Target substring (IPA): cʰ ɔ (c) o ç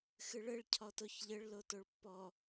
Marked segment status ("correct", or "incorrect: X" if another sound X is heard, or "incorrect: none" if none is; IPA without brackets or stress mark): incorrect: t